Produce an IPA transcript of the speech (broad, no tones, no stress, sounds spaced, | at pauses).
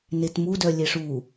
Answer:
n e t m u d œ lʲ e ʂ u